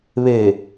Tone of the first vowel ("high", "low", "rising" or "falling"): low